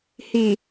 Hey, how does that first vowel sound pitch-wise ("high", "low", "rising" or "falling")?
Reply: low